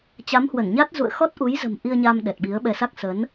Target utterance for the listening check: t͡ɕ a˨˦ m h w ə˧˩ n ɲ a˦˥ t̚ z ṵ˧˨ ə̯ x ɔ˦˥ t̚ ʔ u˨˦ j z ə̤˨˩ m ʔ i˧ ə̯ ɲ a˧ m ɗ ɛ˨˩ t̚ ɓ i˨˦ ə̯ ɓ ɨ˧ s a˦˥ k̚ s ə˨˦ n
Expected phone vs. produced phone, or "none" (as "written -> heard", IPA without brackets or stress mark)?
ɨ˧ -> ɛ˧